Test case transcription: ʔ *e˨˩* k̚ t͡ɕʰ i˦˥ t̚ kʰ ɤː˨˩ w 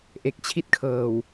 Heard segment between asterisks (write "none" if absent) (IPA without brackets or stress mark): e˨˩